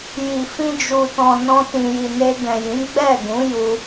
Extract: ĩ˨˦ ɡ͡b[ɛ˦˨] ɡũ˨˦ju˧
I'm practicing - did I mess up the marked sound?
no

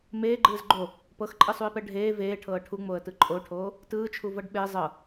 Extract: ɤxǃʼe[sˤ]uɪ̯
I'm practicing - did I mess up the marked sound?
no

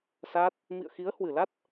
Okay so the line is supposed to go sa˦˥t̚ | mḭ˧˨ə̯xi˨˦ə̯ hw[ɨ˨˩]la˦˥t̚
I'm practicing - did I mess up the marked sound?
no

